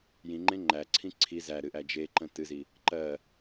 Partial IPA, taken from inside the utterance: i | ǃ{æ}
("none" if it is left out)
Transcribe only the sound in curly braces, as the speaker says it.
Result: ɜ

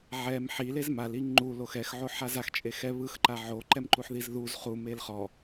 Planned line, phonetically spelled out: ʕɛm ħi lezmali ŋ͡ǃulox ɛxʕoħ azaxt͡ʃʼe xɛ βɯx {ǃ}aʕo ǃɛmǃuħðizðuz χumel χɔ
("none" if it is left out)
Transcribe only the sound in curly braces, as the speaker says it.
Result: ǃ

